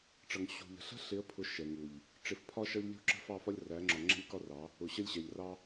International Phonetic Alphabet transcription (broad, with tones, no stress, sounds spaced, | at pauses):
ʈ͡ʂ ʌ˨ ŋ ɕ ṳ˨ ʎ ə̤˨ ɬ ə̤˦ ɬ ɪ˨˦ ə̯ pʰ ʊ˨ ʃ ɛ˨ ŋ u˨ ʎ | ʈ͡ʂ ɪ˨ f pʰ ɒ˦ ʃ ʌ˦ ʎ lʲ ṳ˦ ǁ ə̤˦ f ɑ˦˨ f ɒ˦ lʲ r æ˨˦ ŋ͡ǁ ɒ˨ ŋ͡ǁ ɛ̤˦ lʲ k ɒ˦ r ɑ˨˦ | ʊ˨ ɕ ə˦ lʲ ɕ ɛ˨ ʎ r ɑ˦